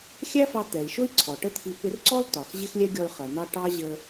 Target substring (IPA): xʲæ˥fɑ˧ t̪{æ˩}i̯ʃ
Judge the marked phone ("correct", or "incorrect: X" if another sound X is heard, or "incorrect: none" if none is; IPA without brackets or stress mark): incorrect: ɛ˩